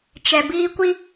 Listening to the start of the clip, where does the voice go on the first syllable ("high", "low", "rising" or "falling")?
low